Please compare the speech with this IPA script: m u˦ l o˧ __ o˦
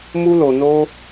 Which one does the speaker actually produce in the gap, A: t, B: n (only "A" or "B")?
B